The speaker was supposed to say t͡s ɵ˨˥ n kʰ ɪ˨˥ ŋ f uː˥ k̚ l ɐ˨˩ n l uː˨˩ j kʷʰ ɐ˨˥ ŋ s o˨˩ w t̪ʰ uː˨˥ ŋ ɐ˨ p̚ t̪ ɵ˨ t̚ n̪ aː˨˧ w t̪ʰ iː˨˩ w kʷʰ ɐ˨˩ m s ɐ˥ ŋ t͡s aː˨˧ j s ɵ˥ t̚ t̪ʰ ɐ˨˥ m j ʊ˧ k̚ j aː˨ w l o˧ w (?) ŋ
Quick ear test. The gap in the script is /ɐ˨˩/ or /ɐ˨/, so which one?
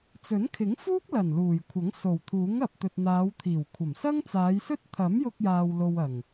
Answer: ɐ˨˩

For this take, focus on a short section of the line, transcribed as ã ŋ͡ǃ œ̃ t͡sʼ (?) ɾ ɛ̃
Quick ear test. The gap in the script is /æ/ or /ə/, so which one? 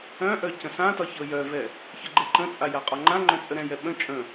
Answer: ə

